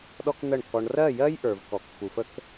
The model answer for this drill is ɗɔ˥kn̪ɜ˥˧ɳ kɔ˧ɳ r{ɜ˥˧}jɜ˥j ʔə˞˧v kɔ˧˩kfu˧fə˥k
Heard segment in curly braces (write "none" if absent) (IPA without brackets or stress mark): ɜ˥˧